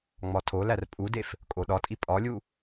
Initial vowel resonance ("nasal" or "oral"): oral